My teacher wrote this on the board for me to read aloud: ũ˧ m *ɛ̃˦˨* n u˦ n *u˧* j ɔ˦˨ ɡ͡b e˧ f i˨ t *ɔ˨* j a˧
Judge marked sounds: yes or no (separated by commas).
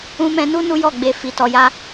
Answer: no, no, yes